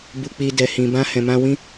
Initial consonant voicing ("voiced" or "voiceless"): voiced